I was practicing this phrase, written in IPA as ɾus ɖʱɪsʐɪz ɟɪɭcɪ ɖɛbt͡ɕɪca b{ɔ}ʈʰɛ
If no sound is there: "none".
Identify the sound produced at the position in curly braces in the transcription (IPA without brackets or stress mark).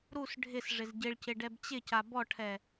ɔ